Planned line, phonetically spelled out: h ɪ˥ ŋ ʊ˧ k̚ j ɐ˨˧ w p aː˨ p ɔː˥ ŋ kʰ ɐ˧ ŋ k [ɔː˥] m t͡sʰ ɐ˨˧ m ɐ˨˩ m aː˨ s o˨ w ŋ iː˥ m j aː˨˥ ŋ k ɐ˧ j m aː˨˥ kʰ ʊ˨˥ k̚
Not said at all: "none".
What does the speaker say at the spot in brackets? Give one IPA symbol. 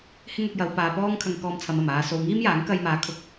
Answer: ɔː˧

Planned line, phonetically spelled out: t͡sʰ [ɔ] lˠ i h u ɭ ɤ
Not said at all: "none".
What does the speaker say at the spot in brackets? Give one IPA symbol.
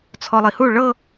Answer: ɔ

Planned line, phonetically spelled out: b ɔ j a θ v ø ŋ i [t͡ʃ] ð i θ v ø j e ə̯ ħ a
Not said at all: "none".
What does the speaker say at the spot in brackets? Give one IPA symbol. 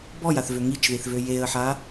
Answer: t͡ʃ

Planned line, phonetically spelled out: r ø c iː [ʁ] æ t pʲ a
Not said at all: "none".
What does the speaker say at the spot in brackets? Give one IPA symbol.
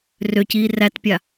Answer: r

